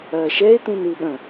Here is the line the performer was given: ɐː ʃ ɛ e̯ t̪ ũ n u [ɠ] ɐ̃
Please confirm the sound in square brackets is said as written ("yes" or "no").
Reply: yes